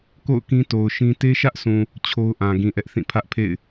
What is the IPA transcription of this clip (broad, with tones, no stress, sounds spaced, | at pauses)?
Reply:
k o̰˦˨ ʊ̯ k ĩ˦ t o˨ ʊ̯ ʃ ĩ˦ t e˦ ʃ ä˦ ʔ sʰ ũ˨ | t͡ɕʰ o˦ ʊ̯ ʔ ã˨ ɡ ĩ˨ ʔ ɛ˦ ʔ θ ĩ˦˨ pʰ ä˦ ʔ pʰ ḛ˦˨ ɪ̯